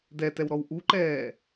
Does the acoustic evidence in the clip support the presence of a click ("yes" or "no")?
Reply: yes